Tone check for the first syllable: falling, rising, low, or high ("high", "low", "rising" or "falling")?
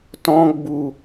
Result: high